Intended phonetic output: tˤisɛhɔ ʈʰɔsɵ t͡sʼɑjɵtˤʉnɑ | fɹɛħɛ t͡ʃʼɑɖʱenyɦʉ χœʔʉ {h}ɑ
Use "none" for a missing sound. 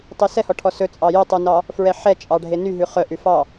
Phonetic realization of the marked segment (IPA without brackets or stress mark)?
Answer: f